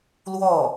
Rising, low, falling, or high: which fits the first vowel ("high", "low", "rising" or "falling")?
falling